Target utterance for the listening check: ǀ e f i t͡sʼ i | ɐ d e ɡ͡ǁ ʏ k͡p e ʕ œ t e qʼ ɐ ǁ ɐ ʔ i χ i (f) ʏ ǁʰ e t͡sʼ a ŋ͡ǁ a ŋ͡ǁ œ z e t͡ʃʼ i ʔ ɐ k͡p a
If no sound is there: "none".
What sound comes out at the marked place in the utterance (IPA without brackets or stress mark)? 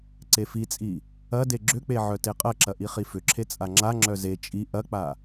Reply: f